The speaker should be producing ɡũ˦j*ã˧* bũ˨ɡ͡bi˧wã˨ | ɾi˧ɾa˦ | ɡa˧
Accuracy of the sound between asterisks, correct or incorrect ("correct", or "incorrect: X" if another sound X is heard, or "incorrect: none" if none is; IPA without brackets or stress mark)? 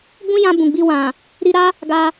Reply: correct